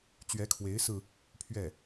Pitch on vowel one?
rising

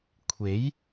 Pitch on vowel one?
rising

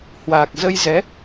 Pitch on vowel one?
low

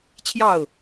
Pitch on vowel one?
falling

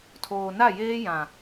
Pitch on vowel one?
low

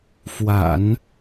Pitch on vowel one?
low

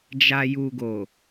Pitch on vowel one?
low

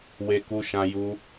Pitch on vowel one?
high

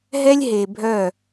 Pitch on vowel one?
high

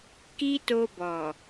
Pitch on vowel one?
high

